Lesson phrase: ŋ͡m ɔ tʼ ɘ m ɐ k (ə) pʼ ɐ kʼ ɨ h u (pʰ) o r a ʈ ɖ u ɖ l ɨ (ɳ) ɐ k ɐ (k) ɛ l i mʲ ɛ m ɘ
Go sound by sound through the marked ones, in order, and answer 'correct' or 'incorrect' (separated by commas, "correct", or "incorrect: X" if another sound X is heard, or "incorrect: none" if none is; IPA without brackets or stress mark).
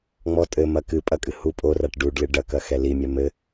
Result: incorrect: ɨ, incorrect: pʼ, incorrect: ɖ, incorrect: x